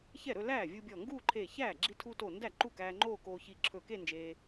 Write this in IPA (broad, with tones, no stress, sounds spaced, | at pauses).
ç ɛ˥˩ ɾ ɵ˥˧ l æː˥˩ vʲ u˧ bʲ ɔ˧˩ ŋ ɡ uː˥˧ ǃʰ eː˧˩ ç æː˥˩ ɡ͡ǁ i˧ tʰ u˧ t o˧˩ n d æ˥˩ ǃ u˥˩ k æː˧ ŋ͡ǃ oː˥˧ k oː˧ ç i˧˩ ǁʰ ɵː˧˩ k e˥˧ n d͡ʒ eː˧